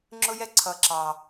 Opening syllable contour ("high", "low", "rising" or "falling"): high